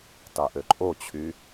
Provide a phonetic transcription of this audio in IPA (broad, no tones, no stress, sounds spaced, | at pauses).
t ɑ ʔ ø ǃʼ o t͡ɕʰ y